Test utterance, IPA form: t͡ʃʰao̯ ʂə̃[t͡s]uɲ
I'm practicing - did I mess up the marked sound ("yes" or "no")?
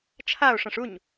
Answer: yes